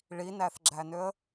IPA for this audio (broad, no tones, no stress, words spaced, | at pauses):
ɭinæθɡ͡ǁænøə̯